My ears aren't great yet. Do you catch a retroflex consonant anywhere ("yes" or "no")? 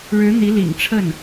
yes